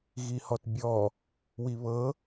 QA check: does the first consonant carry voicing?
yes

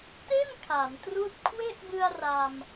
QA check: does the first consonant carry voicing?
no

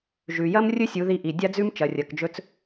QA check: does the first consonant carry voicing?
yes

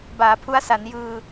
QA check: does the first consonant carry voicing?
yes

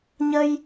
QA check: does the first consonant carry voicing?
yes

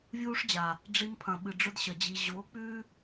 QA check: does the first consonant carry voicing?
yes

